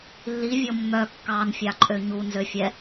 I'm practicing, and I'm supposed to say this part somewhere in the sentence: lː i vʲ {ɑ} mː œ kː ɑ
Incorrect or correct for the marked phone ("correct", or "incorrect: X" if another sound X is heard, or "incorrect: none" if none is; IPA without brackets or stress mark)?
incorrect: ɔ